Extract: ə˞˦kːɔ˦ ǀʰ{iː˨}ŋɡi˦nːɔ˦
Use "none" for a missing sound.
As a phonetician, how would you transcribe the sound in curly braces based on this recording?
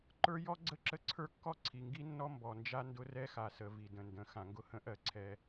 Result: i˨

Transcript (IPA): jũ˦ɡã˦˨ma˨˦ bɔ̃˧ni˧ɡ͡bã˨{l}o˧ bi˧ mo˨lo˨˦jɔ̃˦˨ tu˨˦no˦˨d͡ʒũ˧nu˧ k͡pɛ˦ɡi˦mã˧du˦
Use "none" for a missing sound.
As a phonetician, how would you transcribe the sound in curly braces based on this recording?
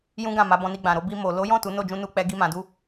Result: ɾ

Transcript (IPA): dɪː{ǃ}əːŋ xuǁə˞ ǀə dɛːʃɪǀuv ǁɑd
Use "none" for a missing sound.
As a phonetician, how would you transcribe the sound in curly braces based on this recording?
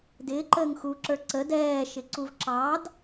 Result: ǃ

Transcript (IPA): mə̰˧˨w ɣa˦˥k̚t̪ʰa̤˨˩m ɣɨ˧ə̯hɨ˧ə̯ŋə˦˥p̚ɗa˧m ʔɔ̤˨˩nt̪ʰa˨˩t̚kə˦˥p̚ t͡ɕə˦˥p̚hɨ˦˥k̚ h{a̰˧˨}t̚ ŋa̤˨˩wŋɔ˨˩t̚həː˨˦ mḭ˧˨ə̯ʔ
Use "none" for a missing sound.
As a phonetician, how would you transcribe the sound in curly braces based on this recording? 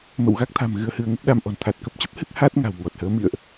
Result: a˦˥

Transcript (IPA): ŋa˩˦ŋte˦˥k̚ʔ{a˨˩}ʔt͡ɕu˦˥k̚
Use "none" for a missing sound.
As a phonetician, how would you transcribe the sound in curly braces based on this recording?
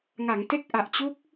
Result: a˨˩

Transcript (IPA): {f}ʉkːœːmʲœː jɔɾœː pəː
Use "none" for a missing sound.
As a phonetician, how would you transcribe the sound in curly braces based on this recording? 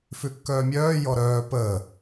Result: f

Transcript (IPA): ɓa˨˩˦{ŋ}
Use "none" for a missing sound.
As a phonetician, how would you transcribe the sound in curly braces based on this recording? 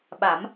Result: m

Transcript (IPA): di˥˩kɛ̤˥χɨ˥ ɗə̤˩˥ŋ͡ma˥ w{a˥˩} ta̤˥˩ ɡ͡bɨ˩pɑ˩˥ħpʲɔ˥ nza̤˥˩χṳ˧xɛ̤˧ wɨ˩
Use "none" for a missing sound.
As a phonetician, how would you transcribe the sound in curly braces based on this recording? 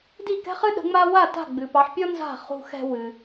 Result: a˥˩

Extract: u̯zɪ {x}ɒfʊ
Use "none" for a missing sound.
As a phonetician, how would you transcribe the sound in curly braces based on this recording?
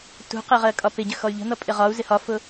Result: h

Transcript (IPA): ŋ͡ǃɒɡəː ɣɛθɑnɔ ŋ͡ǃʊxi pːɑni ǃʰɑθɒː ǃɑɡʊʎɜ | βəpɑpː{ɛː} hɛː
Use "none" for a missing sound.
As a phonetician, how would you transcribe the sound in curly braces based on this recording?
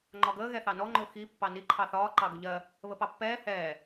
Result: ɛː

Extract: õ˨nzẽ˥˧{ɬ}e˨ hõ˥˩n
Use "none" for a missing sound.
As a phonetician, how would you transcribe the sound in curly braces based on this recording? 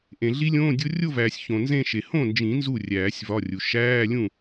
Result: ʃ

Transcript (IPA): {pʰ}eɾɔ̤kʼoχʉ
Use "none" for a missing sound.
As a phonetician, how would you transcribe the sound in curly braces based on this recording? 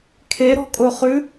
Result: kʰ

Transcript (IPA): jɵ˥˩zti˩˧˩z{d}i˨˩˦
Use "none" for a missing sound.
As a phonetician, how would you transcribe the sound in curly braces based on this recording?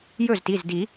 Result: d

